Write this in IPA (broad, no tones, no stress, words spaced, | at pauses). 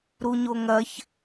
ɾuɲoŋɐç